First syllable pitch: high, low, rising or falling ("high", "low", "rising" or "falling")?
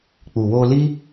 low